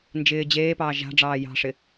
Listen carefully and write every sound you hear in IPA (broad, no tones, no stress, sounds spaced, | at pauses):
n d͡ʒ ɪː d͡ʑ eː p ɑː ʒ a̤ ɖ͡ʐ ɑː j ɑ̤ ʂ ɪ